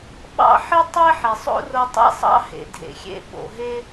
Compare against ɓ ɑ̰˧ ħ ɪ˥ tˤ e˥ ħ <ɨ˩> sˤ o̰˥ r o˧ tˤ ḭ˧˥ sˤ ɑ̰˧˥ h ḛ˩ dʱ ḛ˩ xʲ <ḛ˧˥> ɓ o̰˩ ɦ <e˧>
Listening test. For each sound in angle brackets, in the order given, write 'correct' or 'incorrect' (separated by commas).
incorrect, correct, incorrect